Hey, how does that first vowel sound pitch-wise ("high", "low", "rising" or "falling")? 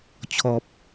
low